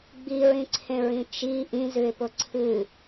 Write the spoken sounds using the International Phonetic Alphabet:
ɡ͡biɹĩǀʰẽɹĩ t͡ʃi ʔĩzʉɪ̯pʊ ǀʰɨ

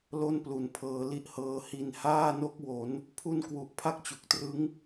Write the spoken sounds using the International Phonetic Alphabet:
lo˥˩nplu˨˩npʰɤː˧ li˦˥ʔhɤː˧ hi˨˩n haː˥˩no˦˥k̚ wo˩˦n | pʰu˥˩n kwu˦˥ʔ pʰa˥˩k̚t͡ɕu˨˩k̚trɯ˦˥ŋ

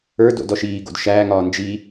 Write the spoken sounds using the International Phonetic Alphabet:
ə˞do̰d ɔʃiːɡo̰d ʃæːŋɒː nd͡ʒi

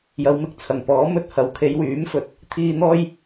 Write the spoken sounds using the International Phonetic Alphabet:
jɐ˨˧wmɪ˨k̚ t͡sʰɐ˨˩ŋ pɔː˨˥mɵ˧t̚hɐ˨˧w kʰe˨˧jwyː˨˥mfɵ˨t̚ | t̪ʰiː˧n̪ɔː˥j

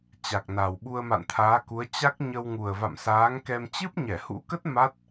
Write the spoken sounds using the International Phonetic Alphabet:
t͡ɕa˨˩k̚na˨˩w ɓu˧ə̯ma̰˧˨nt̪ʰaː˨˦ku˨˦ə̯ t͡ɕa˦˥k̚ɲə˧w ŋu˨˩ə̯va̰˧˨msaː˨˦ŋkɛ˧m t͡ɕɨ˦˥p̚ɲɛ˧˩hṵ˧˥kə˦˥t̚ ma˦˥t̚

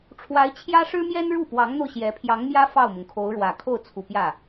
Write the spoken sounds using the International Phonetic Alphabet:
ʈ͡ʂʰwa˧˥ɪ̯t͡ɕʰjä˥ʂɻ̩˥mjɛ˥n ɻu˥˩pwɑ˧˥ŋn̪o˧ʊ̯ ɕjɛ˧˥ pʰjɑ˧˥ŋmjä˥ fɑ˥˩ʊ̯mʊ˩ŋkʰo˧˥ʊ̯ɻwä˨˩ kʰo˥˩ʊ̯t͡sʰu˨˩pjä˥˩

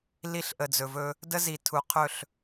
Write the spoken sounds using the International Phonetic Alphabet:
li˦ɬʔə˨d͡zɵ˨vɵ˦ | də˦zi˨ tʰu˨qʰɵ˦˨ɬ

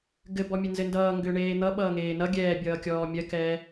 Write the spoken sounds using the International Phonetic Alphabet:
ɡɘbɔ mʲɘnzɘndʌː ŋɡʏːɳeːn̪ʌ ɓʌːŋeːnʌ ɡʲɛːbʲʌːkʲɔː mʲɜkɛː

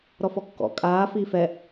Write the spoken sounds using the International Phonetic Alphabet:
ɾɔfɔkːɔ̰ kʼaː fiːfɛ

